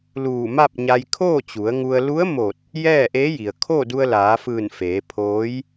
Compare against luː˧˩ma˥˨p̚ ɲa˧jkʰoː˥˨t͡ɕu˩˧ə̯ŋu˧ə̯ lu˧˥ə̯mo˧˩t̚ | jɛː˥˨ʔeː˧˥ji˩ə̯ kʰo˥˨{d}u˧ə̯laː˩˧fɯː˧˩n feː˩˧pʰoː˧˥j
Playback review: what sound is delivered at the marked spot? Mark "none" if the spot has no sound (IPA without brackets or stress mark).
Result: d